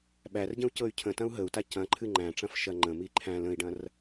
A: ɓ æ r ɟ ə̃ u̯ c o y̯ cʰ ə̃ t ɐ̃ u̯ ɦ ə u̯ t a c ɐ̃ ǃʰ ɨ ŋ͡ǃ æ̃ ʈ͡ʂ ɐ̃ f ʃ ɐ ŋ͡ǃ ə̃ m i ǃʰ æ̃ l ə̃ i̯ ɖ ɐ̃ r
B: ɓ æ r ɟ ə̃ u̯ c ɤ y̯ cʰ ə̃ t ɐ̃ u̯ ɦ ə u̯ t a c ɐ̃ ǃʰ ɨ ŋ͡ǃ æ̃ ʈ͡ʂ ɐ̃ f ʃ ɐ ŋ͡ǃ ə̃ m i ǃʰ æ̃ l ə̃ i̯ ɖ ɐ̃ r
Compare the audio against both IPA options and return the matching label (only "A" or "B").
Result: B